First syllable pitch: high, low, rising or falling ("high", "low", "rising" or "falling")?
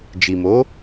low